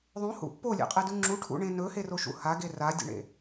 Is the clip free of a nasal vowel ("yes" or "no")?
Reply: no